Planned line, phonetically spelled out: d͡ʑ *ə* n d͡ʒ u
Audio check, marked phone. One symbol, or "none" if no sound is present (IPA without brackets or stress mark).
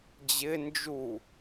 ɪ